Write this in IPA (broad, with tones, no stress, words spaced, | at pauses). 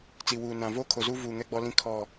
t͡si˨wuː˨nã˨ voː˦kʰo˨zuː˦ vuː˨ ŋɛ˦ɡ͡bɔ˦lĩ˦ kʰɔ˦˨